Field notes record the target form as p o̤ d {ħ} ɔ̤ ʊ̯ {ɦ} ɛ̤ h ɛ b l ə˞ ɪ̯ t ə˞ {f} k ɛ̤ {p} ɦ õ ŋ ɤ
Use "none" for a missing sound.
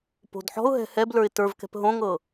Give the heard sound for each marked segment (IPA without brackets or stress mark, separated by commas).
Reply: ħ, ɦ, v, p